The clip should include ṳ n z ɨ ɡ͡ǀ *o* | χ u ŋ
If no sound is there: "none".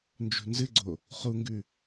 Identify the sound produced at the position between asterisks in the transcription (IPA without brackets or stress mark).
o